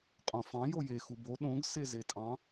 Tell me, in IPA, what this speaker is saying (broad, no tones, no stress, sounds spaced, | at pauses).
qʼ õ f ɑ̃ j o j e x u b o ɗ õ ɡ s e z e tʼ ɑ̃